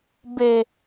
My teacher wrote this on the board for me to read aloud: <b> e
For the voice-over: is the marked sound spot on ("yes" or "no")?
yes